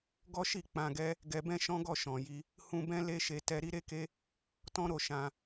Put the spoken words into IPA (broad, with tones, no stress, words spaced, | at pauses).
ɡɔ˦ʃi˦˨ k͡pã˧ɡɛ˦ | ɡɛ˧bɛ̃˦ʃɔ̃˦ɡɔ˦˨ ʃɔ̃˨ji˧ | hũ˧bɛ̃˦ le˦ʃe˧ tɛ˧ɾi˦ɾe˦ke˦ | tɔ̃˦ɾo˦˨ ʃã˧